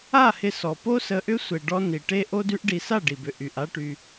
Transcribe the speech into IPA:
a˦˨ h ɪ˧ s ɔ˨ p o˦ s ə˧ ʔ ʏ˦ sʷ e˧ ɖ ɔ˦ n i˨ ʈ e˦ ʔ o˦ d y˦ ʔ ɖ i˧ s a˦˨ ɖ i˨ b ʏ˨ ʔ y˨ ʔ a˦ ʈ y˧

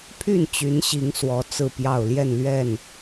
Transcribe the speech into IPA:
pʰ y˥˨ n t͡ɕ y˨˦ n ɕ i˨˦ ŋ s w ɔ˨˦ t͡s ɹ̩˥˨ p j ɑ˥˨ ʊ̯ l j ɛ˥˨ n l ɥ ɛ˥˨ n

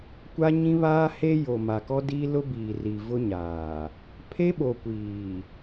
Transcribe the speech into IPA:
kʷ a˦ ɲ ĩ˦ β aː˦ h e˦ j o˨ m a˨ k ɔ˦ d iː˦ l ʊ˦ b iː˨ r i˨ v ʊ˦ ɲ aː˨ | pʰ e˦ ɓ o˨ kʷ iː˨

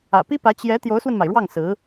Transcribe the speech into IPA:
ä̰˨˩ p i˥ p ä˧˥ t͡ɕ j ɛ˧˥ t̪ j o˧˥ ʊ̯ s w ə˧ n m a˩ ɪ̯ ɻ w ɑ˥˩ ŋ s ɹ̩˧˥

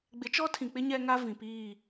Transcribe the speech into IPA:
ɡ͡b ɪ˨˦ t͡ʃ ɔ˦ tʰ ĩ˨ k͡p ɪ˦ ɲ ɛ˦ ŋ a˦ v ĩ˨ p iː˦˨

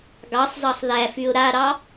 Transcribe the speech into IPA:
ɡ ɑ sˤ z ɑ sˤ ð æ f y ʊ̯ ɾ a ɾ ɑ

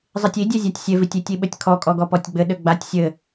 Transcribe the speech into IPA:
zˤ i tʲ i dʲ e zʲ a tʲ sʲ e v i tʲ i tʲ i ɓ ɘ tʲ kʰ ɔ kʼ ɔ ɡ ɔ p ɔ tʲ ɡ͡b ɘ ɗ ɘ ɡ͡b a tʲ sʲ ɘ

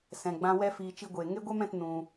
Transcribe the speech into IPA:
s ɛ̃˧ ɡ͡b ã˦ w ɛ˦ f iː˧ t͡ʃ i˦ ɡʷ eː˧ ŋ e˦ ɡʷ ɛ˦ m ɛ̃˧ t n ũ˧

